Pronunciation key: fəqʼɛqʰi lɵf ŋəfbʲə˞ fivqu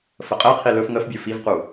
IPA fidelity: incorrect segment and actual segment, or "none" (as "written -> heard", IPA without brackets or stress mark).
none